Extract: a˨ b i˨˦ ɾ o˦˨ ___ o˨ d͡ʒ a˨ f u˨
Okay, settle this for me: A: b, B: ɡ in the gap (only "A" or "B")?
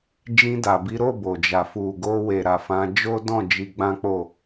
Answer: A